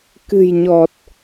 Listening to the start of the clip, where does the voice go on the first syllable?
low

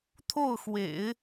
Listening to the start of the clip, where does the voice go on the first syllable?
falling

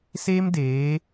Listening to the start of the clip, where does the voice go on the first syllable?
high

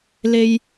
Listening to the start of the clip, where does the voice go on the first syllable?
high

